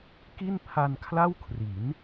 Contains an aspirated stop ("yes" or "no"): yes